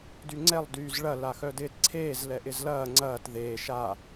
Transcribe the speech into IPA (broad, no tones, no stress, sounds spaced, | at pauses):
d y ŋ͡ǀ ɛ lˠ d yː z ɭ ɐ l a x œ d ɪː t ǀʰ eː z l ɛ ʔ ɪ z l ɐː ŋ͡ǀ ɐː t ð eː ʃ a